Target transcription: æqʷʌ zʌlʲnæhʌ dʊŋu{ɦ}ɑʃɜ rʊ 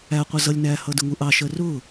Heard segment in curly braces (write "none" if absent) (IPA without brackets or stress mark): ʔ